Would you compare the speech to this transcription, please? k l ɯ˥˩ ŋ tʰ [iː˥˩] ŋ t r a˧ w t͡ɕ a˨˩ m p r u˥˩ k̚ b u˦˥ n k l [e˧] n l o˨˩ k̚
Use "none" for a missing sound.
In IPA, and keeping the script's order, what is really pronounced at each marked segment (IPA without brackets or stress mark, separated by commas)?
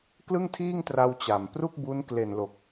iː˥˩, e˨˩